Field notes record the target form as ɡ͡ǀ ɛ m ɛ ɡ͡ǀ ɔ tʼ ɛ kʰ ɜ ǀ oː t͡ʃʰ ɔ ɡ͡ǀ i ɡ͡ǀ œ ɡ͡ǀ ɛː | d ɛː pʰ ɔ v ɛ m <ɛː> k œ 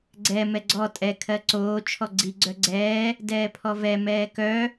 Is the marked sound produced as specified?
yes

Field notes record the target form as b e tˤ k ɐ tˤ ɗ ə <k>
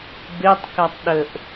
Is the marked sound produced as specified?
no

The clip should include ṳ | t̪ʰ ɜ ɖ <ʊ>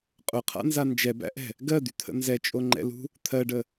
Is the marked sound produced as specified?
no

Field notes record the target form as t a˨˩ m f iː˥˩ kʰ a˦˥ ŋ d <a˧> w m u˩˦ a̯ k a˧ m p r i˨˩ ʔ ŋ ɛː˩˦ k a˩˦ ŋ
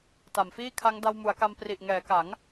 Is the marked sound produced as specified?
yes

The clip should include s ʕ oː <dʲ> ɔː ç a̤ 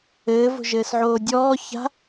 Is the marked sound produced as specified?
yes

